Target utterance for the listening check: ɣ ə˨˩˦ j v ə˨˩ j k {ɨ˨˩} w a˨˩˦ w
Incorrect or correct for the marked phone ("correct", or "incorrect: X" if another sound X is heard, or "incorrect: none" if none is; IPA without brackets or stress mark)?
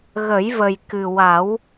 correct